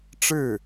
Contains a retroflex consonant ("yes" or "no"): yes